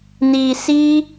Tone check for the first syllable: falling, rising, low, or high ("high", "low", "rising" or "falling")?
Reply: low